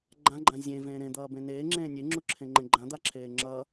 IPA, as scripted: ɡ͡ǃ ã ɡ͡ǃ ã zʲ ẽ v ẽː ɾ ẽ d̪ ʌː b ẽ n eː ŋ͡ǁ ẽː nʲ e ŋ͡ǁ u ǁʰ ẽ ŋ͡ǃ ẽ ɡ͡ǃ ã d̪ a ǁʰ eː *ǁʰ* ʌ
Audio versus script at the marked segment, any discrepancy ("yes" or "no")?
yes